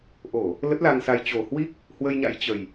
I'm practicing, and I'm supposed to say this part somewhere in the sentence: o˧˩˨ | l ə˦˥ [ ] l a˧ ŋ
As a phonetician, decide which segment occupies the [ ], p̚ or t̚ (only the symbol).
t̚